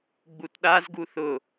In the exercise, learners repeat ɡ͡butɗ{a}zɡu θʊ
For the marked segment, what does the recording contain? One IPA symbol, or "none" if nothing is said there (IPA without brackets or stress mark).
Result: a